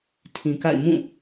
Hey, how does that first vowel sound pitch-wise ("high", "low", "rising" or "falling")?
low